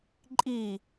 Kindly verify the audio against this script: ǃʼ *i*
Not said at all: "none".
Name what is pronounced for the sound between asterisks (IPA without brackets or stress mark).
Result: i